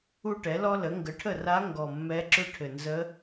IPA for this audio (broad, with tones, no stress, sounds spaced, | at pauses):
u˥ ʈ ɛ˩˥ l ɔ˥ l ə˩˥ ŋ ɡ ə˩˥ ʈʰ ə˥˩ r a˧˥ ŋ ɡ ɔ˨˩ mː ɛ˧˥ ǁ ʏ˥ ʈʰ ɘ˨˩ n z ə˧˥